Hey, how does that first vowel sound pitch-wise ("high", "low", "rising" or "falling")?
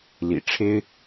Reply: low